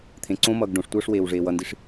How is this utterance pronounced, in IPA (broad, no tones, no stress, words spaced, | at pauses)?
t̪ʰẽǀõmʌːɡ ɖõʂtʷʌːʂ weːwʐeːwʌndiʂ